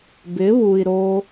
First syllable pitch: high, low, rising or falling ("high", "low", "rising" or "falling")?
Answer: rising